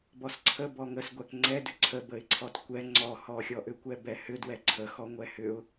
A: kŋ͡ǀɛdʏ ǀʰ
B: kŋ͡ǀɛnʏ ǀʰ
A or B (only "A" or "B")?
A